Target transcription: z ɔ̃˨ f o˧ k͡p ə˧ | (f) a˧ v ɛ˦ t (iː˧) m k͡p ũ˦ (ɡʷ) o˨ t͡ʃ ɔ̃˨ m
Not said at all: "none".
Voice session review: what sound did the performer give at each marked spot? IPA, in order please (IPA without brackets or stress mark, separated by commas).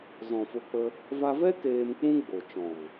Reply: v, eː˧, ɡ͡b